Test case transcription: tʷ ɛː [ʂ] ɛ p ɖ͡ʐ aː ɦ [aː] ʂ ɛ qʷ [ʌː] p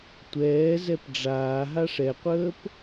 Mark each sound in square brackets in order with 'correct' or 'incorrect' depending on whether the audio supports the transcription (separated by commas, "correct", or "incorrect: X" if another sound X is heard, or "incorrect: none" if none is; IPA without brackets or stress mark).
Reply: incorrect: z, incorrect: a, incorrect: əː